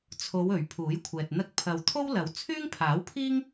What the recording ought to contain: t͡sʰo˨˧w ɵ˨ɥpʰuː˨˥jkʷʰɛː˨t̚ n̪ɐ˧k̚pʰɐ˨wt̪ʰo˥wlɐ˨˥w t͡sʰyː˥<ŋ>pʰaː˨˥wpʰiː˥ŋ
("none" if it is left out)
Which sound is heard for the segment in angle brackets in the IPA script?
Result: ŋ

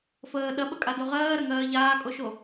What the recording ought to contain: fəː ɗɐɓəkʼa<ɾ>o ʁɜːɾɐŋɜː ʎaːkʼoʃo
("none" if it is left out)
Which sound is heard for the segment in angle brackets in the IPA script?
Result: d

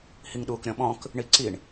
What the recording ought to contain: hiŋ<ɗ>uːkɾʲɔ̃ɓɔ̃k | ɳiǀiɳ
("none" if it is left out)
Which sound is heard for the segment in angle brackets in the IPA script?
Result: ɗ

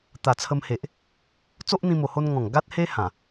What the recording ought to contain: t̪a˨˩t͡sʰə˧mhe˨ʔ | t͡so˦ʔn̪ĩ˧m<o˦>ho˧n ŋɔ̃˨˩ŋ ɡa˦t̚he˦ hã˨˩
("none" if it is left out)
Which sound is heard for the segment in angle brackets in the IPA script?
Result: o˨˩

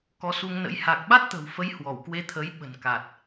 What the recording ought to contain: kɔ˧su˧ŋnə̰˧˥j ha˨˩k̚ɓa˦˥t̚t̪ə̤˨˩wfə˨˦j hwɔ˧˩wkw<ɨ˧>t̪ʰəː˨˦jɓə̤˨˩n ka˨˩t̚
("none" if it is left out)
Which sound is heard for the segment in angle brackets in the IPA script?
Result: e˧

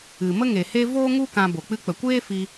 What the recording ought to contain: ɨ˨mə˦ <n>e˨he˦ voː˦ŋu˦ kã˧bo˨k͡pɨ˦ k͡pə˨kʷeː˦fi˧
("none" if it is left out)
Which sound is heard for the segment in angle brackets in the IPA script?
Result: ŋ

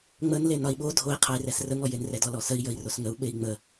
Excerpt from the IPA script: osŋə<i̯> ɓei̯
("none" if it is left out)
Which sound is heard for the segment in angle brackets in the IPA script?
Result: u̯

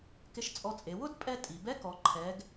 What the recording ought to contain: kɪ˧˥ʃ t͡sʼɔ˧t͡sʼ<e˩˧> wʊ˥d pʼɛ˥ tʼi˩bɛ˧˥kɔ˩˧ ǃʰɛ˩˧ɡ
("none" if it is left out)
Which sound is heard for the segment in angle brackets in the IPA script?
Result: e˩˧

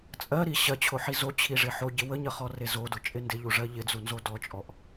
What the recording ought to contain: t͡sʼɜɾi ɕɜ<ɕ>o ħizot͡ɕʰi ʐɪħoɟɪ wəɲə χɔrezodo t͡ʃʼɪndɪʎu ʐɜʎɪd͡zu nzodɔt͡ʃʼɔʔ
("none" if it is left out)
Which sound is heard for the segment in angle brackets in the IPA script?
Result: t͡ɕʰ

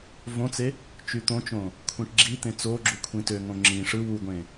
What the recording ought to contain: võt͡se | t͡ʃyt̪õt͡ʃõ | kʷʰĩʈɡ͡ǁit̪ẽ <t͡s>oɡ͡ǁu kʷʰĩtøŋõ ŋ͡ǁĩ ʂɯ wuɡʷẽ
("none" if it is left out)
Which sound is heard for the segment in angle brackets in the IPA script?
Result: t͡s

